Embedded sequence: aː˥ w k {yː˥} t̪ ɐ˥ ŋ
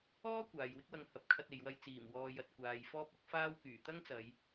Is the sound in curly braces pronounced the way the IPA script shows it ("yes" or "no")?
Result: no